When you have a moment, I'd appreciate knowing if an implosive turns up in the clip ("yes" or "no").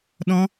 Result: yes